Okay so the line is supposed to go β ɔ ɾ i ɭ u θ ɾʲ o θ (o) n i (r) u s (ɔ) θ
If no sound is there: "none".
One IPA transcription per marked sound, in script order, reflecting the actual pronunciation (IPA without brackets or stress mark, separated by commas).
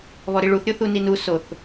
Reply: u, n, o